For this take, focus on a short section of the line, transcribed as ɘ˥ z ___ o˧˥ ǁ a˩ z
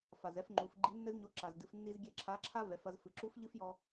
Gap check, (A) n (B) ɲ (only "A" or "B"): B